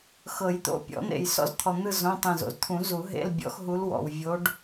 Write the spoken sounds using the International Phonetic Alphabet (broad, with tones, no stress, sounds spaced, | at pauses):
x ɤ˨˩˦ j t̪ o̰˧˥ pʲ ɔ̰˨˩˦ n̪ ḛ˨ j s ɔ̰˧˥ z t̪ʰ ɔ˨ n̪ ɯ˦˨ z õ˧˥˧ tˤ ẽ˦˨ z o̰˨ z t̪ʰ ũ˨˩˦ z u˨˩˦ ɦ ḛ˧˥˧ l bʲ ɔ̰˧˥ x ɦ u˧˥ l w ɔ̰˨ w vʲ o˧˥ ɖ